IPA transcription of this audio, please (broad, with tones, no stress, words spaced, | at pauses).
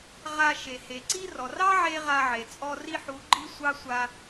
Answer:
ʁa˧ ʃe˨ he˨ǀi˦rɔ˨ rɑ˦ ʕe˦ʁa˧ʕe˨ t͡sʼɔ˧ri˦ħu˨˦ ɡ͡ǃi˦sʷɑ˦ sʷa˧